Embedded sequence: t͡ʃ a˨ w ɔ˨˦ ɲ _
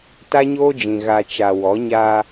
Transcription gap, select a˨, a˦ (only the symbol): a˦